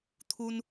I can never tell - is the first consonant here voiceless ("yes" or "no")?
yes